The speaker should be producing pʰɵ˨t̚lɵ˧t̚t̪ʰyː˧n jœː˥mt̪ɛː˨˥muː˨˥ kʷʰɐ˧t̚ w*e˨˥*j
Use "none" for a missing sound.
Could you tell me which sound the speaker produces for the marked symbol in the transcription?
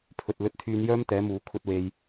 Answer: e˧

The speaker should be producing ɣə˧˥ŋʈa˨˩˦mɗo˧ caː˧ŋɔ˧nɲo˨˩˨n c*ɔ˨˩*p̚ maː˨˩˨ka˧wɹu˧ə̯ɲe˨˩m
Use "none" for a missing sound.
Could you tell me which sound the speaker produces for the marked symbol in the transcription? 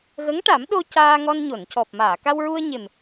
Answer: ɔ˨˩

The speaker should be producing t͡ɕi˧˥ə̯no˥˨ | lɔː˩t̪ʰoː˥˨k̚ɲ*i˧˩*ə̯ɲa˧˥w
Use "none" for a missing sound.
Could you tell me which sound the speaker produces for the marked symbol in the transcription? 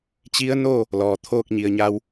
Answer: i˧˩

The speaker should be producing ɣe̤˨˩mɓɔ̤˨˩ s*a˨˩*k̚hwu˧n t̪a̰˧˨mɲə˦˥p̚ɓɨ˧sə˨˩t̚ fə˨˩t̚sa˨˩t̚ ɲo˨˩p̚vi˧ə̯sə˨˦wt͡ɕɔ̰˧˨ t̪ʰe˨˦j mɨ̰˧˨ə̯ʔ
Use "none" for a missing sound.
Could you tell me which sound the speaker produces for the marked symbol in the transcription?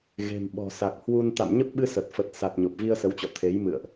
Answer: a˨˩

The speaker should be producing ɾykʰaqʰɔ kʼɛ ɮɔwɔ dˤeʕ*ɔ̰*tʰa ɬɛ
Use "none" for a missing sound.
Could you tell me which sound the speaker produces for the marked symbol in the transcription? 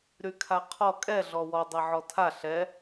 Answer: ɔ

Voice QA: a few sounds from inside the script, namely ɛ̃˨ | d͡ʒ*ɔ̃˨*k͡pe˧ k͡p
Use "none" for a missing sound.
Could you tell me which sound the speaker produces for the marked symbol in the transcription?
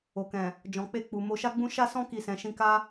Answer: ɔ̃˨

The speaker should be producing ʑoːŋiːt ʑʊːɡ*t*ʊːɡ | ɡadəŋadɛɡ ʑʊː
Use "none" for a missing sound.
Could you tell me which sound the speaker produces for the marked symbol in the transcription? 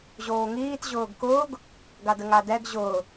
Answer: k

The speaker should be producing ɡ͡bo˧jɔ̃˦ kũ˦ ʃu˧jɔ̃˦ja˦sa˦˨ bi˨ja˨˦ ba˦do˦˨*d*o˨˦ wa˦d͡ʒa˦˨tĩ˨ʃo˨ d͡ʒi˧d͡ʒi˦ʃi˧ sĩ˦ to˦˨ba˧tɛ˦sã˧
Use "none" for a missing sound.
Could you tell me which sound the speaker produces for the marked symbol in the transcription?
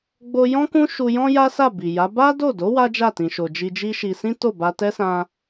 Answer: d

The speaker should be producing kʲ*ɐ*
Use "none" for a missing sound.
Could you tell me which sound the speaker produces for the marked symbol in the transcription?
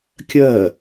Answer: ɐ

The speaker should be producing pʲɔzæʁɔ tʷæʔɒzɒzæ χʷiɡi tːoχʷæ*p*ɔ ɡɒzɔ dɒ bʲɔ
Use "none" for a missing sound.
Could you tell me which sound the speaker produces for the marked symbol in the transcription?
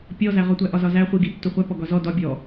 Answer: p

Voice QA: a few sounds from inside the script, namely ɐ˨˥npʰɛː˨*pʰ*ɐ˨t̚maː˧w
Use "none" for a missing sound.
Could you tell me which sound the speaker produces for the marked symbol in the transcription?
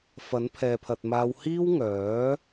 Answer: pʰ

